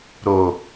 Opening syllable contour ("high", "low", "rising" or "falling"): low